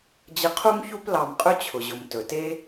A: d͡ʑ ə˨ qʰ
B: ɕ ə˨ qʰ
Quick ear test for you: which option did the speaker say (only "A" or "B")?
A